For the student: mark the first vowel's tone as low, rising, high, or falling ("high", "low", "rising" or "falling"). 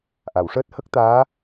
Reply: low